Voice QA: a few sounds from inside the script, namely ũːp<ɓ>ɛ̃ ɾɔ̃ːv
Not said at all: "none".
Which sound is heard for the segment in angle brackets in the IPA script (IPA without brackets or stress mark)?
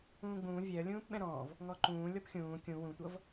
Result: ɓ